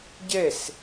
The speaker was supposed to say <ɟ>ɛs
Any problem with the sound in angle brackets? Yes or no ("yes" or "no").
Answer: no